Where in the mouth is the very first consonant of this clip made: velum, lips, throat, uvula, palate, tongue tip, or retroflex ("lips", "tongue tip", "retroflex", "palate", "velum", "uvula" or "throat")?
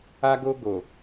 velum